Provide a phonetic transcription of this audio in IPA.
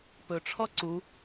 p ɵ ʈ͡ʂʰ ɔ ǀ u

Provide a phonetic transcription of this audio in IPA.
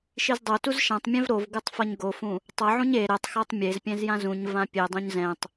ʃ i z dˤ o t u z ʃ ã tˤ mʲ ɛ̃ v ɾ o v ɡ ɯ tˤ f ʌ ɲ ɡ o f ũ | tˤ ʌ ʕ ũ ɲ e ɾ ɛ tˤ x a tˤ mʲ e z pʲ ɛ̃ z j ã z ũ ɲ v ã pʲ e dˤ ũ ɲ z ɛ̃ tˤ

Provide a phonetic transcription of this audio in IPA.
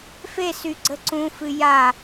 f e s y ɡ͡ǀ ə ǀ ũ f ɨ j a

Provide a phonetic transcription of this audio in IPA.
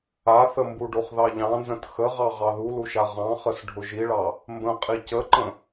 a θ ə m b u ɖ o χ ð ɑ ʎ ɑ̃ n z ə̃ t x ə ʁ ɑ ʁ ɑ ð u l u ʃ a ʁ ɑ̃ χ ə s ɖʱ ʊ ʒ i ɭ ɑ | m b ə̃ qʼ i c ə ǃ ə̃

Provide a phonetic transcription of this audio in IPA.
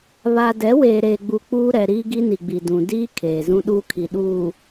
β a˨ d ɛ˨˦ w eː˨ ɾ eː˨ ɡ͡b u˨ k͡p uː˦ ɾ ɛ˨ ɾ iː˦ ɡ i˦ n i˨ ɡ͡b i˨ d ũ˨ d iː˦ kʰ eː˨ z ũ˦ ɗ uː˦ kʰ i˨ ɗ uː˨

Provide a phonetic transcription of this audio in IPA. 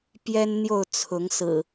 p j ɛ˦ n n̪ j o˥˨ ʊ̯ t͡sʰ ʊ˨˦ ŋ s ɹ̩˨˩

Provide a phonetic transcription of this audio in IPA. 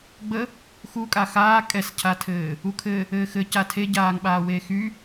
ɡ͡b ə | x u kʼ a x aː kʼ ɛ s cʰ a tʰ ɘː | u kʰ ɘ | ɘː x ɘ c a tʰ e ɟ aː ŋ ɓ aː w eː x y

